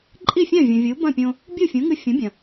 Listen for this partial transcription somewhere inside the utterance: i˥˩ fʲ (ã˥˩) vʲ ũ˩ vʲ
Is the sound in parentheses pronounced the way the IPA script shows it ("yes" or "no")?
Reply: yes